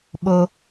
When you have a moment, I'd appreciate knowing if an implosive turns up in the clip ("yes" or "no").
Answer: yes